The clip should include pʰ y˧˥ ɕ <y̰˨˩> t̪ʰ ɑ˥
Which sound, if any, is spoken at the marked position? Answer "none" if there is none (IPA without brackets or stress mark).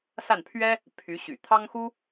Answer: y̰˨˩